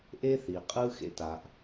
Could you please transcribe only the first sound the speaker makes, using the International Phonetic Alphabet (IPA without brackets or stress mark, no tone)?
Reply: ʔ